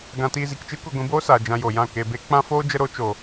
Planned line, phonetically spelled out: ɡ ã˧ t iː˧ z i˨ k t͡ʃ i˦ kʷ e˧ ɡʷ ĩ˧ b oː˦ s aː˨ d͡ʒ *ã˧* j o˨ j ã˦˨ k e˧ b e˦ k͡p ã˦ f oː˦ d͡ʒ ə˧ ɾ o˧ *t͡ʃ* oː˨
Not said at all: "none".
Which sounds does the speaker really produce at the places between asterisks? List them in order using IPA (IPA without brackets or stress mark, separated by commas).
ã˧, t͡ʃ